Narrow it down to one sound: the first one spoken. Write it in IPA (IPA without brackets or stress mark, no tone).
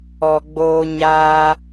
ɔ